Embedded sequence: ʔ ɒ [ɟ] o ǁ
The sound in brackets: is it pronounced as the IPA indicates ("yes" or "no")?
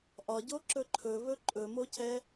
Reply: yes